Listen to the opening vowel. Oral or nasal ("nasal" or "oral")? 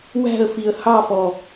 oral